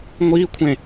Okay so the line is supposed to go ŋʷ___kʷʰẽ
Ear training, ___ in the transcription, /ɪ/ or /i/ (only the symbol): i